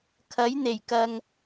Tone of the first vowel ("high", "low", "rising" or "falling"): rising